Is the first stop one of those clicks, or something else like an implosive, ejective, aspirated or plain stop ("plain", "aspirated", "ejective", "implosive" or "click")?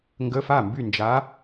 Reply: plain